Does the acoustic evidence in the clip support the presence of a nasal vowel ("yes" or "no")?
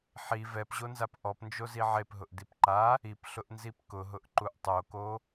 no